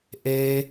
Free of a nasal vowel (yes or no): yes